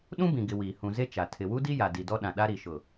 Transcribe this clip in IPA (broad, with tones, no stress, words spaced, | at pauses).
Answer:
ɗũ˦bĩ˨ɡɪ˨ wiː˨ hũ˨ze˦ t͡ʃa˨ tʰɪ˨wu˦di˦ ja˨di˨dɔ˦ɗã˨ ɗa˦ɾi˨ʃʊ˨